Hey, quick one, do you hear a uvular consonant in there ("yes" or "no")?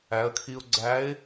no